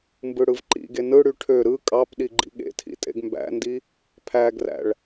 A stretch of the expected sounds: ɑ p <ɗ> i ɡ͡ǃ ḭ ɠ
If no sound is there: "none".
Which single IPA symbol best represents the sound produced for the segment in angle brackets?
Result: ɗ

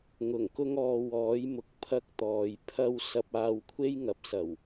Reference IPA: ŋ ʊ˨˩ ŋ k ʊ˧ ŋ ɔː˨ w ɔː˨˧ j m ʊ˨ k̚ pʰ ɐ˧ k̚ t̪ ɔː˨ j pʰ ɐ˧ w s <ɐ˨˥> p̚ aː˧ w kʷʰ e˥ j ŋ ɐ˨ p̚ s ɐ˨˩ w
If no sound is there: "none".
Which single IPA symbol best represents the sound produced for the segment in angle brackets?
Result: ɐ˧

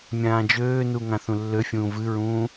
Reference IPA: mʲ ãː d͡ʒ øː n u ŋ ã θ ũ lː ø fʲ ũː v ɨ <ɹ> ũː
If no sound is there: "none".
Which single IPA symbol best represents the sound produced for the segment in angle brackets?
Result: ɹ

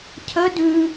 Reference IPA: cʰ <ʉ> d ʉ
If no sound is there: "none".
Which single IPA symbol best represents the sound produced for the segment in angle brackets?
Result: ə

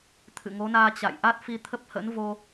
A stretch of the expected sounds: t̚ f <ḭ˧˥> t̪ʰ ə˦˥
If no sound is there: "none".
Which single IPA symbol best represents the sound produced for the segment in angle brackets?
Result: i˧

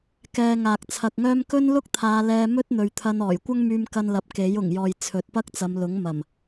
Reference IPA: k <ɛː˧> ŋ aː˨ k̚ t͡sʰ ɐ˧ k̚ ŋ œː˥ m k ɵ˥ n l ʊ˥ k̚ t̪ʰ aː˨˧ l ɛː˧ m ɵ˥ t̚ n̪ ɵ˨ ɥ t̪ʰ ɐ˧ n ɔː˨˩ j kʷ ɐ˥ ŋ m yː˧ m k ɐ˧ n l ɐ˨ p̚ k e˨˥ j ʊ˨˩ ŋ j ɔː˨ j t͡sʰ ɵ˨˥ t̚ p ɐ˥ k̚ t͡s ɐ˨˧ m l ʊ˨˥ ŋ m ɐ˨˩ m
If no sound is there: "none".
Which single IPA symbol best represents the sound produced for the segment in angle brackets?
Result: ɛː˧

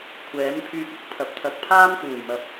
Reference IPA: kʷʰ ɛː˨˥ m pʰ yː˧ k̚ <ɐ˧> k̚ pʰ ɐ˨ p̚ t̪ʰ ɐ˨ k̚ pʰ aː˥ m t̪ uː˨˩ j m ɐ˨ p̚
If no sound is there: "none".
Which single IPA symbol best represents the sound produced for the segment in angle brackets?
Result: ɐ˧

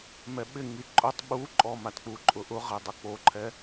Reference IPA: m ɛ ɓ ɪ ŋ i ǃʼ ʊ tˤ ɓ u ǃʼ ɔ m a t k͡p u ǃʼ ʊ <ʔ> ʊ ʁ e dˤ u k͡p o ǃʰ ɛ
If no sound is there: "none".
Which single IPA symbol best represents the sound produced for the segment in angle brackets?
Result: ʔ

